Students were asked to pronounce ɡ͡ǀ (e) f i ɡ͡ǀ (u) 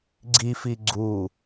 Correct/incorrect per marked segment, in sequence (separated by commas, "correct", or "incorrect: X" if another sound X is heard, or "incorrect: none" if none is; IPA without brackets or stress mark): incorrect: i, correct